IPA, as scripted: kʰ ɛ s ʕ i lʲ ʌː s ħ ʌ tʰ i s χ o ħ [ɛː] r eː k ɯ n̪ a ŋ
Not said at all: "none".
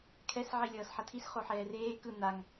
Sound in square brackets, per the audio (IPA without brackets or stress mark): ɛː